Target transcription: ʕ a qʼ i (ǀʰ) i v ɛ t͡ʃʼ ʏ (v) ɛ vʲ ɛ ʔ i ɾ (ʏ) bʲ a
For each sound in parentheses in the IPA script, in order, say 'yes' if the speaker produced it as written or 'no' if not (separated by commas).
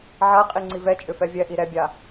no, no, no